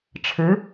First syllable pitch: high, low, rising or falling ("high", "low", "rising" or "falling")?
rising